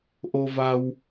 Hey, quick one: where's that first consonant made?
throat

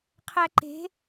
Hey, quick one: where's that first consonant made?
uvula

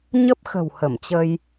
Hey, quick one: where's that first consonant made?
palate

